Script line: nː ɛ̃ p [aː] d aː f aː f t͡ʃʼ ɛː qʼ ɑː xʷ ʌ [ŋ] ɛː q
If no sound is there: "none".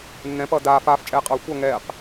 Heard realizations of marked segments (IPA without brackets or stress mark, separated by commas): ʌː, ŋ